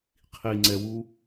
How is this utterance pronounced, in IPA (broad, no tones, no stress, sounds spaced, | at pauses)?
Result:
qʰ i ŋ͡ǀ ɛ w u